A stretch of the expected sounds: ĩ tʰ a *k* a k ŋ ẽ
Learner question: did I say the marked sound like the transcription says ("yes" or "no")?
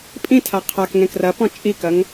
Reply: no